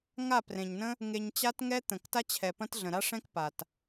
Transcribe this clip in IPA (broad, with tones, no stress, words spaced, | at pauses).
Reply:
ŋa˦˨prẽ˨ɲnə̃˦ | ŋe˧ɲt͡ɕa˦tŋɛ˦ t̪ə̃˨k ta˦t͡ɕʰɛ˨ pɐ̃˦t ɮə̃˨ɾa˦ʂɛ̃˦k pa˨t